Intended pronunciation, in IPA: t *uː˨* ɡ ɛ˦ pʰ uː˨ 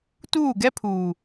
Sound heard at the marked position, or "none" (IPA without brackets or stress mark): uː˦˨